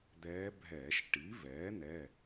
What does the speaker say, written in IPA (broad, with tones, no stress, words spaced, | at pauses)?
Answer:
d̪ɛː˧˥bʱɛː˧˩˧ʃ ʈi˩˥ vɛː˩˥n̪ɛ˩˧˩